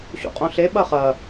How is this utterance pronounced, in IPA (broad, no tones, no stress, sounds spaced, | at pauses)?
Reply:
ɕ ṵ qʼ õ ɬ e ɓ ɐ χ ɐ